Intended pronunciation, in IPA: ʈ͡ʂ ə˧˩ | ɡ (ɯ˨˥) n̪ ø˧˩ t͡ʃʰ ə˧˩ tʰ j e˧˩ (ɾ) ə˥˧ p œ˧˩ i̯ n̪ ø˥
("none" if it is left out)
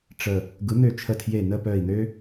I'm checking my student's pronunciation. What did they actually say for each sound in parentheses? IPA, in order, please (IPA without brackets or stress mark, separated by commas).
ɯ˨˥, n